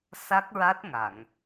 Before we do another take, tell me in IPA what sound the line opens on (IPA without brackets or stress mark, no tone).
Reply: s